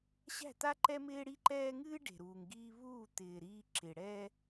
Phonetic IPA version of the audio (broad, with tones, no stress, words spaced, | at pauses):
ɕæ̤˦˨t̪a˦ǃɛ˦ mɪː˦ɽi˦ǃɛː˦ ŋɨː˦ ɖe̤˨ɾuː˨ŋɡiː˦ βuː˦˨t̪ɪː˨ ɾiː˦ǁɪ˨ ɽɛ˦